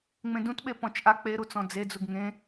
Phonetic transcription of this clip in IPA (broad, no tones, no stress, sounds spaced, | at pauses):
ŋ͡m ẽ d ũ t ɓ e p ɔ̃ t͡ʃ ʔ a k͡p e ɾ u t͡s ɔ̃ d͡z e d͡z u ɡ ŋ ẽ